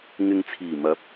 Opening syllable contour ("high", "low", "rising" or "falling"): low